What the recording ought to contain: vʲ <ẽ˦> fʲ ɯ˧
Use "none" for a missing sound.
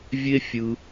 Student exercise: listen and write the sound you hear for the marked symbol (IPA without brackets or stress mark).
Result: e˦